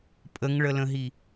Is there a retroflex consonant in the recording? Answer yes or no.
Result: yes